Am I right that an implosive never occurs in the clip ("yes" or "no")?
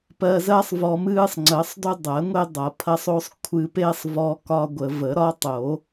yes